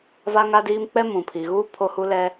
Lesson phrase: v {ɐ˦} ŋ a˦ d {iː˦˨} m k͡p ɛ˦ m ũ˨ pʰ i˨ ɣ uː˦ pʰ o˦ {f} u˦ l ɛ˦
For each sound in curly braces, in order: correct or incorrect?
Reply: incorrect, incorrect, incorrect

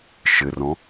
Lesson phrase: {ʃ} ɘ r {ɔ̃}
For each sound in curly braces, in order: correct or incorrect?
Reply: correct, correct

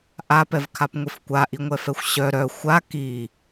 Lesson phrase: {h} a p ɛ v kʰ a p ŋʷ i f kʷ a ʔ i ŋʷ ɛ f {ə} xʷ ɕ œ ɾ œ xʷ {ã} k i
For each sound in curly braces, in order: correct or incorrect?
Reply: incorrect, incorrect, incorrect

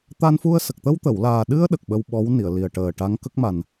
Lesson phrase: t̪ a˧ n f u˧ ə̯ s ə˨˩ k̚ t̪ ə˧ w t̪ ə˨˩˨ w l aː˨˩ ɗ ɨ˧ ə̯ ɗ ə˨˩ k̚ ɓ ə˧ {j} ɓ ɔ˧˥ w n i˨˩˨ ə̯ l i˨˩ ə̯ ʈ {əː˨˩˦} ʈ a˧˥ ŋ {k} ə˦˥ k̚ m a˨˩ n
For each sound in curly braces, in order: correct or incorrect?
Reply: incorrect, incorrect, correct

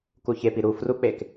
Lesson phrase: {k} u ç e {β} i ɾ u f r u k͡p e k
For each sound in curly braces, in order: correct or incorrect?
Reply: correct, incorrect

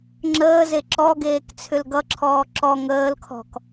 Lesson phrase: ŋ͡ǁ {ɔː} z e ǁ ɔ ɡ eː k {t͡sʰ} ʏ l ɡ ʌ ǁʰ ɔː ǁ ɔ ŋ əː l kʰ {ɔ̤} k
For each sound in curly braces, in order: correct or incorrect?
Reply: incorrect, correct, correct

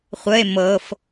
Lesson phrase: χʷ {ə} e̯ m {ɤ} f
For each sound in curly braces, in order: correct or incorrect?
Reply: correct, correct

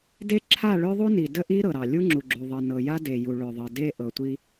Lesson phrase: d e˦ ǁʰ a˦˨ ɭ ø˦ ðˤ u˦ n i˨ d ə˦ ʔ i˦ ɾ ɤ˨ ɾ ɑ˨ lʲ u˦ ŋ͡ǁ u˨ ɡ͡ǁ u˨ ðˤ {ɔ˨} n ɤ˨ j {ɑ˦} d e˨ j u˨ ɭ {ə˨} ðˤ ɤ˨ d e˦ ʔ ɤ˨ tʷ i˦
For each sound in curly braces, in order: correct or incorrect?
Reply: incorrect, incorrect, incorrect

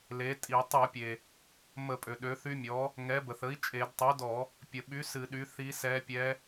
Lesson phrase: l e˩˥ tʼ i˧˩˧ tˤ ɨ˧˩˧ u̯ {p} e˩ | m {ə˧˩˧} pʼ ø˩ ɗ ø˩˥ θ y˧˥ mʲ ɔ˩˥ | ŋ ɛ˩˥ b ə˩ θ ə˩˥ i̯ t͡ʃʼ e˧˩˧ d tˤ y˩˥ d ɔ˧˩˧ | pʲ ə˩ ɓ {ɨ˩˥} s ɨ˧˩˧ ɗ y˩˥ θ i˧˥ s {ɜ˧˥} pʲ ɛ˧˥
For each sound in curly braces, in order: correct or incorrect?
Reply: incorrect, correct, incorrect, incorrect

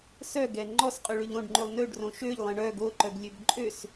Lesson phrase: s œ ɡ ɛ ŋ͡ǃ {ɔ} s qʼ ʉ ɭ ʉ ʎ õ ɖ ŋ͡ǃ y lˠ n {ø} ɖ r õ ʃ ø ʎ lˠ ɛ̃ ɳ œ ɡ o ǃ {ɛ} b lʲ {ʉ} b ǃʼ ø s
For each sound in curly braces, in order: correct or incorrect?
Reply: correct, correct, incorrect, incorrect

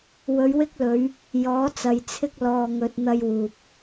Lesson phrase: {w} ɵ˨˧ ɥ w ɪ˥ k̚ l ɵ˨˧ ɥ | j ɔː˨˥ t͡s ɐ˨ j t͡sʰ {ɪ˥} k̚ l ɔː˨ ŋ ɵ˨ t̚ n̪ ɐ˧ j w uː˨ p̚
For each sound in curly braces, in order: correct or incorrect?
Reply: correct, correct

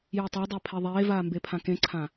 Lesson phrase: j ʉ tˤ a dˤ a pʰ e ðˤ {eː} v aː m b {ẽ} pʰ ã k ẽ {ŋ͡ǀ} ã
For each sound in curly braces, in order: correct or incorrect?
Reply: correct, incorrect, incorrect

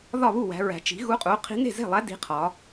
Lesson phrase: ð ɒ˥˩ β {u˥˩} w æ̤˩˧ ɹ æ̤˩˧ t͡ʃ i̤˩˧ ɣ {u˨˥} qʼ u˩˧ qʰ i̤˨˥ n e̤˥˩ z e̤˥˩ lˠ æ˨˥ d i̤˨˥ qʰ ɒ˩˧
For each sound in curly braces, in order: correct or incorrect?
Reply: correct, correct

